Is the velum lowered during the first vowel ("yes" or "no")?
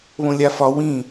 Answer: yes